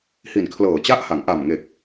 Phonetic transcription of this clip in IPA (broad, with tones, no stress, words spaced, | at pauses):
hi˨˩nkʰlɤː˨˩t͡ɕa˥˩ʔha˩˦ŋ ʔa˨˩mŋe˨˩k̚